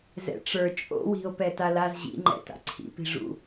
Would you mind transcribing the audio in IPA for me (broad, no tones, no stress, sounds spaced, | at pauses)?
z ɛ̰ ʈ͡ʂ ə˞ t͡ʃʼ o̰ w i̤ o̯ p ɛ t a l a z ʑ ḭ ŋ͡ǃ ɛ̰ t a̰ ǀʰ ḭ p i̤ ʐ ṵ